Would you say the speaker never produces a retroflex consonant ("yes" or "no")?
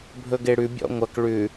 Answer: no